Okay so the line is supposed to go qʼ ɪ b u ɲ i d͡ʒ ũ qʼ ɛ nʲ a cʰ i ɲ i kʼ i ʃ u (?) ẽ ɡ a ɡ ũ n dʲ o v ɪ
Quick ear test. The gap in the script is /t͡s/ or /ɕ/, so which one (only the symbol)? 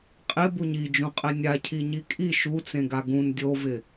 t͡s